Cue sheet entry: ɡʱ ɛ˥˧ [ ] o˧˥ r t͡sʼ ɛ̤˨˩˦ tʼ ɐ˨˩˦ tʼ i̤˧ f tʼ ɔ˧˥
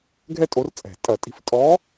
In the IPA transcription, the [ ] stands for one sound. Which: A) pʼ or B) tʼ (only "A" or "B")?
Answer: B